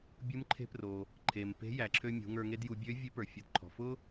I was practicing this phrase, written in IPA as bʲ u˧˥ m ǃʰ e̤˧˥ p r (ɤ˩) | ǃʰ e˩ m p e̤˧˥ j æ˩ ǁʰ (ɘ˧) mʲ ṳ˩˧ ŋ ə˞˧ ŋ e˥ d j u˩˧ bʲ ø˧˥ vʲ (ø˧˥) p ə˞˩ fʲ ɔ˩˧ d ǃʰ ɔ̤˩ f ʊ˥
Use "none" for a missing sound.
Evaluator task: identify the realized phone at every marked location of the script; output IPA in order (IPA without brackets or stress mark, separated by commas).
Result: o˩, ø˧, e˧˥